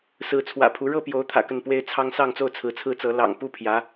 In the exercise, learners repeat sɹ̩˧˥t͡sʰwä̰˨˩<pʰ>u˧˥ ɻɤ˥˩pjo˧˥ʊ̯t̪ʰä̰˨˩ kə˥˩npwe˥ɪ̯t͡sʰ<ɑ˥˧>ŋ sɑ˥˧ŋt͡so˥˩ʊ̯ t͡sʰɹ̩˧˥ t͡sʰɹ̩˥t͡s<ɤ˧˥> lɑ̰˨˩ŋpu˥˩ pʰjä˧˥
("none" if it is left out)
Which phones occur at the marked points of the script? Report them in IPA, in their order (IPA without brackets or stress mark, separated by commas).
pʰ, ɑ˥, ɤ˧˥